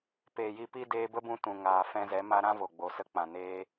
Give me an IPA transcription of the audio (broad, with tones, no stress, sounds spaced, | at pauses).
p eː˨ j i˧ p i˦ d eː˧ b ə˦ b ũ˧ t ũ˨ ŋ aː˨ f ɛ̃˧ z ɛ˨˦ m a˦ ɾ ã˦ v o˨ ɡ͡b o˨ s ə˧ k͡p ã˨ n eː˧